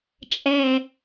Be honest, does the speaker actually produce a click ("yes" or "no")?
no